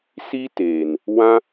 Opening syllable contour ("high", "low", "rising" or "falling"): high